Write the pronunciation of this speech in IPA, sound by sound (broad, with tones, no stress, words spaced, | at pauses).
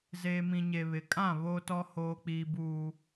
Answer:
zeː˨mĩ˨ ɲe˨βɪ˨kʼã˦˨ βo˦tɔ˦ hoː˦ k͡piː˦ buː˦